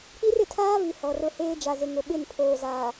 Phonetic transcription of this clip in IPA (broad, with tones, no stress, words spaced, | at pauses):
k͡pi˦rɪ˨tʰaː˦vi˨ hɔ˨rʊ˦heː˦ d͡ʒa˨zɪ˨ ŋʊ˨ɓɪ˦˨n pʰoː˨zaː˨